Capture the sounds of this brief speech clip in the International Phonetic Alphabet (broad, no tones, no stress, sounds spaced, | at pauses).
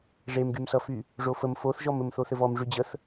ʐ e m ɡ y m s ʌ f y | ʐ o f ə m f o θ ʒ ɔ m ɘ m θ o θ ɘ v ɔ m ʐ y d͡ʑ ə θ